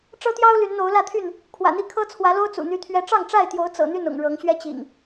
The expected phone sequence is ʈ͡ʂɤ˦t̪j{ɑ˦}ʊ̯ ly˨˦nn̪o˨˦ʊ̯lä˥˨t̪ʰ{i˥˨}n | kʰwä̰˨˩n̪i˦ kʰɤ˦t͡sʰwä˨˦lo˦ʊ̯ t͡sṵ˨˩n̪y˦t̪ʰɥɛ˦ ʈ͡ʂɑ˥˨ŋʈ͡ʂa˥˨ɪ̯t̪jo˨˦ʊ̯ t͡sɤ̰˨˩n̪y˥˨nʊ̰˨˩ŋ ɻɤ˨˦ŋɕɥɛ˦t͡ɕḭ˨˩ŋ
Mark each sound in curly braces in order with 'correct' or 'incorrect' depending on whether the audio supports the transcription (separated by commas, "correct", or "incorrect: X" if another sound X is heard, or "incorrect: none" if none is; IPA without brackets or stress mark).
correct, incorrect: y˥˨